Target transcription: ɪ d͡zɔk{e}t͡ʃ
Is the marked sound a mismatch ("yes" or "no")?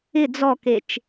no